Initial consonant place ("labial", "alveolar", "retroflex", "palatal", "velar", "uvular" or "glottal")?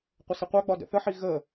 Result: uvular